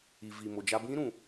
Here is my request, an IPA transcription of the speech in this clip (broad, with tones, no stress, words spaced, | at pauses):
i˨vi˨mo˨d͡ʒa˦ bĩ˦ɾũ˨